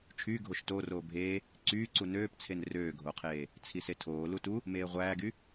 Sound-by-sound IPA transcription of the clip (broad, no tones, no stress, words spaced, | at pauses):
t͡ʃʰyːɡʱoʃ toːroː bʱeː | ǀyː ǀunøːpt͡sʰen røːɡʱoqʰeː | t͡sʰisetʰoː lutu | meːʁʷæːɡy